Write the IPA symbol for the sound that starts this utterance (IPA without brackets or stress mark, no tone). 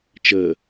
t͡ʃ